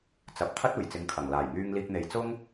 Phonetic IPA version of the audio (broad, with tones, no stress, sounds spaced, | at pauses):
t͡s ɐ˨˥ p̚ t̪ʰ ɐ˥ t̚ uː˨˩ j t͡s ɪ˨˥ ŋ kʰ ɐ˨˩ ŋ l aː˨˩ j ŋ yː˧ ŋ l iː˧ k̚ n̪ e˨˧ j t͡s ʊ˥ ŋ